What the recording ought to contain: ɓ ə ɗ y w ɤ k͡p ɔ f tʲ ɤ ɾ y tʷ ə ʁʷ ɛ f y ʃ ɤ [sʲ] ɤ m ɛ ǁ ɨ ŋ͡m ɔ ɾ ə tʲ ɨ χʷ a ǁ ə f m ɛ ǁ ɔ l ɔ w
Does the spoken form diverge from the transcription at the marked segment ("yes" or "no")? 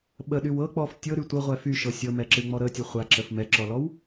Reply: no